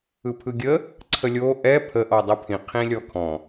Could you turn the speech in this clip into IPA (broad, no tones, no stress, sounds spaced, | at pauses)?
ɯ pʰ ɯ ɡʲ ə | ǀʰ ə lʲ o ʔ ɛ pʰ ə ʔ ɔ dˤ ɯ pʰ ĩ qʰ ĩ lʲ ɔ kʰ ɔ̃